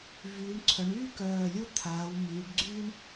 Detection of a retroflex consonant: present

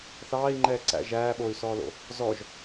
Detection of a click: present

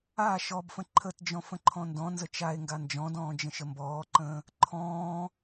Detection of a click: present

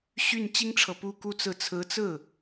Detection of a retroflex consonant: present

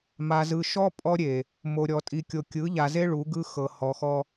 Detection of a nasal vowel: absent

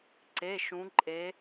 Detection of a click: present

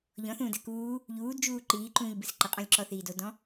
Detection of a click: present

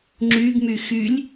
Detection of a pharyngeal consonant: absent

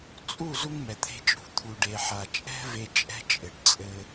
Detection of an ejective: present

